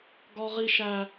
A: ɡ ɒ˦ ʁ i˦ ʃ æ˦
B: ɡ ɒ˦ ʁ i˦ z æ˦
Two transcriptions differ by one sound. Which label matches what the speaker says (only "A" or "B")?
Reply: A